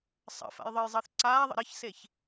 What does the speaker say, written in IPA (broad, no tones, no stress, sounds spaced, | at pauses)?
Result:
sˤ ə̰ f a̰ j ðˤ ɨ j zˤ əː θ ǀ aː ðˤ ə̰ ɾ ə ç s e ç